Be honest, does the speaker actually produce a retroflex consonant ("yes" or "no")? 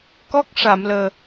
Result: yes